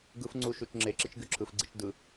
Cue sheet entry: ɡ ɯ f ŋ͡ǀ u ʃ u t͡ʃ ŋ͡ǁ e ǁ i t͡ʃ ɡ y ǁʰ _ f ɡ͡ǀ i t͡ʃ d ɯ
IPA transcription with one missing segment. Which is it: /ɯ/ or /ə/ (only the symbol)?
ɯ